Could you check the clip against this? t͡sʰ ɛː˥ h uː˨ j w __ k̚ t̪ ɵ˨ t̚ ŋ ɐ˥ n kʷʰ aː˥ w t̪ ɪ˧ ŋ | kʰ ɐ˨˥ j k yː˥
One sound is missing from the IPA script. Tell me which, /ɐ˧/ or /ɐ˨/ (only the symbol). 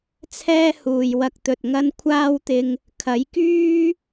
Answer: ɐ˧